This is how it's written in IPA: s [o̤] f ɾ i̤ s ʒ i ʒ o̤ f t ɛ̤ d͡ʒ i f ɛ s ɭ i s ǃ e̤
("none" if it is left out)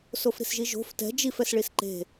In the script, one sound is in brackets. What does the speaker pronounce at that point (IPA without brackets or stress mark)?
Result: o